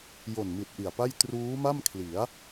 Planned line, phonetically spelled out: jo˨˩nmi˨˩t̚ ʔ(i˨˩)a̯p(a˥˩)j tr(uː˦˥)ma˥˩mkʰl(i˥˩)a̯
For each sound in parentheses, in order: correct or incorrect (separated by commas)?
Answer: correct, correct, correct, incorrect